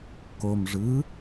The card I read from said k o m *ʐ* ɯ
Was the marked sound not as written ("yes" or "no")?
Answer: no